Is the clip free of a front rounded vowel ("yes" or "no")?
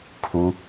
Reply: yes